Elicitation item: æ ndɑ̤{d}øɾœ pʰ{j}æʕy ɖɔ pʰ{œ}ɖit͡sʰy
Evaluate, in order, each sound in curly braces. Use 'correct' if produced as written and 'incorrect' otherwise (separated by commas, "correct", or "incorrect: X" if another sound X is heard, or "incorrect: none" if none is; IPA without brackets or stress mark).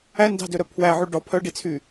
correct, incorrect: w, correct